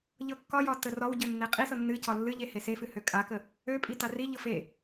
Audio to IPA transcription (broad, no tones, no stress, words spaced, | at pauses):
ʎɤkːɒjɒ tərɒwɟø nːeqʼisɤ nːɨcɒ lːɨʎe hesefɨ høkʼakə | ø pʼitariʎɤf e